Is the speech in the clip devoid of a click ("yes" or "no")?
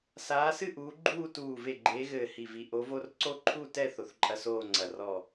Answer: no